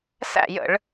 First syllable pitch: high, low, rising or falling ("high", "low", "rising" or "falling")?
falling